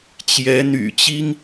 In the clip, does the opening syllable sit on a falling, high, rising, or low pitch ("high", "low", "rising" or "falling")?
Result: rising